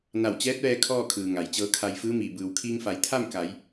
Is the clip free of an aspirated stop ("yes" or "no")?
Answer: no